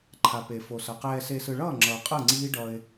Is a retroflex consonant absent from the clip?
no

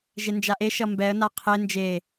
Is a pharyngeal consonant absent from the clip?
yes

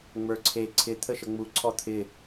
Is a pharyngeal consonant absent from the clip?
yes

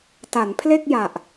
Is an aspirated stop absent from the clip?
no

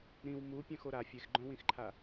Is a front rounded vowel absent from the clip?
no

